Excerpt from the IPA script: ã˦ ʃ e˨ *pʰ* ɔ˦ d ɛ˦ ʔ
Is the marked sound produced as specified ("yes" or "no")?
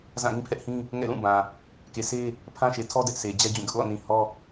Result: no